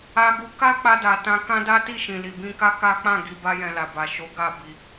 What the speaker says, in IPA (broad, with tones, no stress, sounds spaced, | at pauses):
a˧ ɡ u˧ k a˦ k͡p a˧ d a˨ t ã˧ k ã˦ d a˦ t i˦˨ ʃ ĩ˨ l i˨ b ĩ˧ k a˦ k a˦ k͡p ã˦˨ ɡ i˨ b a˧ j ɛ̃˨ l a˨ b a˨ ʃ o˨˦ ɡ a˦˨ b i˧